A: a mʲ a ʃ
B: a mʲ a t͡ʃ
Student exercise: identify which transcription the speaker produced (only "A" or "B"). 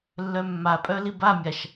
A